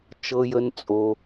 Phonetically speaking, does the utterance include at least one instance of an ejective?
yes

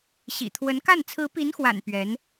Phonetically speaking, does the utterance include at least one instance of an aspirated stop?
yes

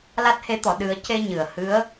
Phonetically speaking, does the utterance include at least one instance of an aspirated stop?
no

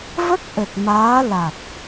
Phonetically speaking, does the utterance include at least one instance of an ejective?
no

